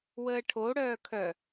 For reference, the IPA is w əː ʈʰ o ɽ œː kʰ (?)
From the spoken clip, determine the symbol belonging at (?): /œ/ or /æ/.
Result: œ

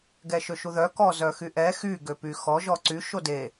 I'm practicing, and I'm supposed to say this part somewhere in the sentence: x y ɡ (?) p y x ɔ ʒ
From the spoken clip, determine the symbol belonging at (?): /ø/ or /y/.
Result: ø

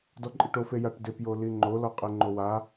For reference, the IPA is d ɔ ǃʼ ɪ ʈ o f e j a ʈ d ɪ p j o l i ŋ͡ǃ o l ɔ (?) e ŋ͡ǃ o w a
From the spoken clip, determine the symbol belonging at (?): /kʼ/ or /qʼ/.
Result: qʼ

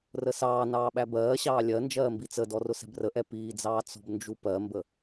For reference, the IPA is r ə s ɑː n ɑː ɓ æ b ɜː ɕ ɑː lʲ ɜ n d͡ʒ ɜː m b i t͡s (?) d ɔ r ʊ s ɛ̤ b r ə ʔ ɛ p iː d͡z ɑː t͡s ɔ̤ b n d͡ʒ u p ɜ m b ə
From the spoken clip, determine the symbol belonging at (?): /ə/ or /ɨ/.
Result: ə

